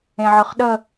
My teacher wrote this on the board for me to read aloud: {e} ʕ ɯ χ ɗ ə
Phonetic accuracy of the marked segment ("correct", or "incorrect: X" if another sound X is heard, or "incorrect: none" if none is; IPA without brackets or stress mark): incorrect: ẽ